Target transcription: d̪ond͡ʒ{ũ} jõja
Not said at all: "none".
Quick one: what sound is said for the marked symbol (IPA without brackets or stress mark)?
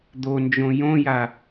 õ